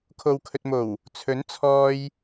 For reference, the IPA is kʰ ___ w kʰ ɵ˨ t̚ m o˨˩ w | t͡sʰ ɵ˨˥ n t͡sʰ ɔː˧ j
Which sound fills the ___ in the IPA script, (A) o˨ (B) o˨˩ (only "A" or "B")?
A